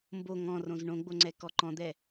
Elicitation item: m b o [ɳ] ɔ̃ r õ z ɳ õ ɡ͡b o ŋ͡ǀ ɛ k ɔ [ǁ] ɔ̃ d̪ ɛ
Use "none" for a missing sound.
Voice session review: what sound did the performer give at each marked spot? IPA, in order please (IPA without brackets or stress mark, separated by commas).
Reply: ŋ, ǃ